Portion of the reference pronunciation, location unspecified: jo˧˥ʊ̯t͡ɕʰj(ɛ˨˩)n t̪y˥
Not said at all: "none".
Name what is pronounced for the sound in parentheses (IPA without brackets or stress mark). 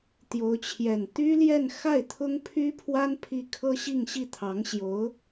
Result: ɛ˨˩